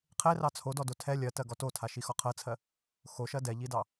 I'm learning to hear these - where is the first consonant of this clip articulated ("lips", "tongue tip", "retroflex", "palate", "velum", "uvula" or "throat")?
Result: uvula